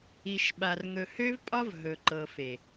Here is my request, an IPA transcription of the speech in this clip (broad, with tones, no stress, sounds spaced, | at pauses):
i˨ ʃ ɓ a˨ r ŋ ɵ˨ h ø˦ v pʼ ɒ˦ v ɦ ɵ˨ ǃ ɤ˨ f e˨